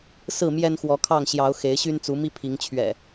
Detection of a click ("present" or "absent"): absent